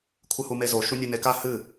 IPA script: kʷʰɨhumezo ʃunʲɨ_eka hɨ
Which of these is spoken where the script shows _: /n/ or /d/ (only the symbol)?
n